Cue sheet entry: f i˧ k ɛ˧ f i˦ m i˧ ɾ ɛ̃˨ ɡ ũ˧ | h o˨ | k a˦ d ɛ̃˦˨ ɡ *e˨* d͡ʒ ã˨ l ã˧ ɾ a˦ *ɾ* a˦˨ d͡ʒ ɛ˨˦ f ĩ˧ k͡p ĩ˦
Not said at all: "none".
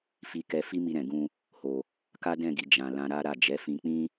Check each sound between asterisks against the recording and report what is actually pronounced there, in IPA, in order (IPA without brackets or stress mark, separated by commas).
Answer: i˨, ɾ